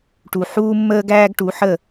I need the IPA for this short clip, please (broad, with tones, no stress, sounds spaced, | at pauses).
ʈ u˧ ħ uː˦ mː əː˦ ɡ æː˦ ɡ ʈ u˨˦ ħ ə˦˨